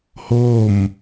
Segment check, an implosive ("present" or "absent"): absent